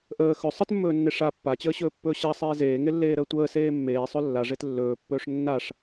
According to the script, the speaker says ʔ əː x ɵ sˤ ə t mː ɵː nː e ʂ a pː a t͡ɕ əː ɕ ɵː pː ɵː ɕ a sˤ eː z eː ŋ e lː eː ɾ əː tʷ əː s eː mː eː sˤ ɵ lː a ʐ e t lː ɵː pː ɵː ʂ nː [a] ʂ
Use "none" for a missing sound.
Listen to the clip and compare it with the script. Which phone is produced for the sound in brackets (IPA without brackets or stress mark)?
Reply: a